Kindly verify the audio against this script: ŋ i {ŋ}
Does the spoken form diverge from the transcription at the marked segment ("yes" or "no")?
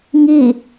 yes